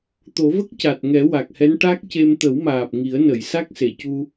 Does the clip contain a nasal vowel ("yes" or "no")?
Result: no